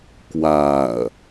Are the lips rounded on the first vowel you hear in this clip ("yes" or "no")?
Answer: no